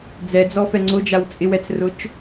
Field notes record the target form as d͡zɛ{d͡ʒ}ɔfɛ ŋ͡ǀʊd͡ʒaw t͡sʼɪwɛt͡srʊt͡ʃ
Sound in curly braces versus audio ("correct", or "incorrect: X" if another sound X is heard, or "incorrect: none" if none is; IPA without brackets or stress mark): incorrect: d͡z